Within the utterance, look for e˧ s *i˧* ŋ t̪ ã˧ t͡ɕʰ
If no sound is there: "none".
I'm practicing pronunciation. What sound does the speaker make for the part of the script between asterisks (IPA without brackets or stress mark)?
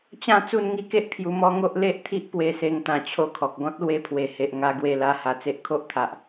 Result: e˧